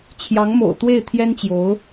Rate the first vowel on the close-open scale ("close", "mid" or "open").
open